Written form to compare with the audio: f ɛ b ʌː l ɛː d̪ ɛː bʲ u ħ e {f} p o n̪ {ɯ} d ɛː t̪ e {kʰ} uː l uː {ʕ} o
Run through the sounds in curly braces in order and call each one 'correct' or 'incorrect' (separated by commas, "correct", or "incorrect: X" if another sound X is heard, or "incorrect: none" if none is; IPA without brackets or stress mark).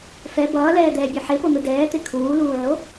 incorrect: none, correct, correct, correct